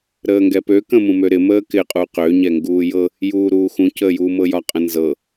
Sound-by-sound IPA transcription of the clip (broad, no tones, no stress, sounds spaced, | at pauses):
ɾ əː ŋ ɡ ɛ p ø k ə̃ m ũ m ø ɾ ɪ m əː k ɪ qʼ u q ø ɲ ɛ ŋ ɡ uː j ɤ | j uː ɾ uː x ũ c əː j uː m ɤ j ɒ qʼ ə̃ n z ɤ